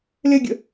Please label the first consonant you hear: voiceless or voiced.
voiced